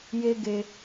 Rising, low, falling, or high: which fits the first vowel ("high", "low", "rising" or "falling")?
high